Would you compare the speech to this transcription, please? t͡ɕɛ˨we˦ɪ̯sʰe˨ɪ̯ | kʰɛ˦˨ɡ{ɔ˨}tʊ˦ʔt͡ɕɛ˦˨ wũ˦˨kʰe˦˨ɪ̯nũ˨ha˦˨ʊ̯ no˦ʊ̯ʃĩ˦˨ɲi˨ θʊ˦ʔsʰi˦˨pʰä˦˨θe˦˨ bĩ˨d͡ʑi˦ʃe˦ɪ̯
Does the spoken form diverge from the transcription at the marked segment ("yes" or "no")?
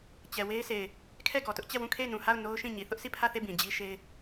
no